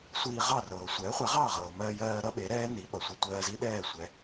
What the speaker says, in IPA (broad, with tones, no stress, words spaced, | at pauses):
sʷiː˧ʁɑ˥˩rɤː˩ sʷɛː˩˥χʷɛ˩˥ʁɑː˥˩ ʁɤː˩mɜː˧jɜː˧ɾʌ˥ ɓe˩˥ɾɛː˥ ni˩˥ɓʌ˩sʷɛ˧ tʷɜː˧zi˥ɗɛː˥˩ sʷɛ˩˥